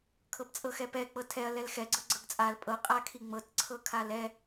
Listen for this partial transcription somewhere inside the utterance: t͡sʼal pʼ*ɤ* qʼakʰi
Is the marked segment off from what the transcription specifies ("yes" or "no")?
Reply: no